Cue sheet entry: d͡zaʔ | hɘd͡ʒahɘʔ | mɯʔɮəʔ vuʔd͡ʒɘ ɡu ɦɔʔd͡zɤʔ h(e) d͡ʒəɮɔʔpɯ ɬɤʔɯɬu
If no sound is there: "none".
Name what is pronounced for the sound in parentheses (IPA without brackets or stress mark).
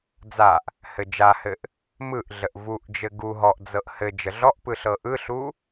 ɘ